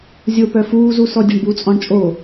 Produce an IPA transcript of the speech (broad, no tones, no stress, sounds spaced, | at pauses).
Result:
zʲ o p œ f uː z u s ɔ dʲ ɛ ɳ b u t͡sʼ ɔ̃ ɳ t͡ʃʼ o